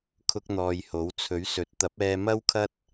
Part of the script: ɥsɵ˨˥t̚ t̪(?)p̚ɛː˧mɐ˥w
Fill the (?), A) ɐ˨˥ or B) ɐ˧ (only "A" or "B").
A